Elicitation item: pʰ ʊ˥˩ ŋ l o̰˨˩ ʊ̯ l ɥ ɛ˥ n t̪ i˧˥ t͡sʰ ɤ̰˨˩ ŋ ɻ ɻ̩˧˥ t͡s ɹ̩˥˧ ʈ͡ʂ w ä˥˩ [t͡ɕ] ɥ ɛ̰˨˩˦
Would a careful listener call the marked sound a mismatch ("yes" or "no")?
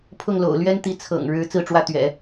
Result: yes